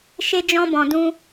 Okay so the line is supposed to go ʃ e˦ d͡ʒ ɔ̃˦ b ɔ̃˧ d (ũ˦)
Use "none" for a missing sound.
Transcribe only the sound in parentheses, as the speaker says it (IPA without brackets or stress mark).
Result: ũ˦